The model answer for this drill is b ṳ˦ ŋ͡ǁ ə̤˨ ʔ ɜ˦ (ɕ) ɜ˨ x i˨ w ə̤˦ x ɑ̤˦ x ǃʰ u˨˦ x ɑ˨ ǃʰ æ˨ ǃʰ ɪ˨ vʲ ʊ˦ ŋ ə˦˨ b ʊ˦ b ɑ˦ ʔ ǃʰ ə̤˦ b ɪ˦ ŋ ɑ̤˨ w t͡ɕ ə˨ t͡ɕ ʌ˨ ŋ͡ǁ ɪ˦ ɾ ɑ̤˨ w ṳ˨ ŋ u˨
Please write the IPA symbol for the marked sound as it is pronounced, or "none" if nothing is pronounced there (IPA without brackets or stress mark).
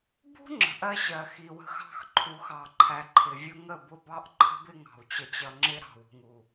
ɕ